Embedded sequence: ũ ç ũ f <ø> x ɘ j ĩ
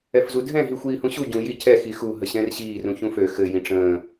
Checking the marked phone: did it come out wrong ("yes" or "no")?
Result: no